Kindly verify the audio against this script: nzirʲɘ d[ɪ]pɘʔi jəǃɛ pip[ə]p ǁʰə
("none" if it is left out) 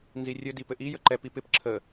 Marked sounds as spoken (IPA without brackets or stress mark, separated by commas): i, ɪ